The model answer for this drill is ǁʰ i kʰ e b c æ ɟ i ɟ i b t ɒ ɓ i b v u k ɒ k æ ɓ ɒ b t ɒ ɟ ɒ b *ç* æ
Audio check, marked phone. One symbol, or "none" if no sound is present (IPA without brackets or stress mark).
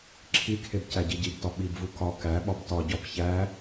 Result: ç